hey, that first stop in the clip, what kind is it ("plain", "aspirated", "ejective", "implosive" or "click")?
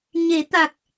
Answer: plain